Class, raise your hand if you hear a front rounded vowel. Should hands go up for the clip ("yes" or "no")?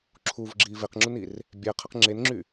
yes